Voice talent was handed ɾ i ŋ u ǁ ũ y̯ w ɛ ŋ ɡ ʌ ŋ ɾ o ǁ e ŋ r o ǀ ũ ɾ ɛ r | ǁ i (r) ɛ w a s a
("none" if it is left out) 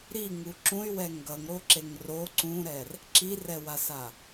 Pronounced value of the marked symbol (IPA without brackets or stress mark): r